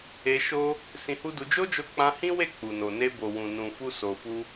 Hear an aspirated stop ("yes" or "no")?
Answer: no